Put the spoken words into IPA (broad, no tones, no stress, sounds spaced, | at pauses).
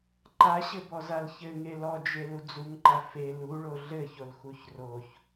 ǃ a ɕ ɘ b ɔ z a l ç ɘ ŋ e l ɔ d͡ʒ e l u d͡z u ŋ ǃ a f e l u ɭ o ɮ ɘ ç o l x u ç r o ç